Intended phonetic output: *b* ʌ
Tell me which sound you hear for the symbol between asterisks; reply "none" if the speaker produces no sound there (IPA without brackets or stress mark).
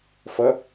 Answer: f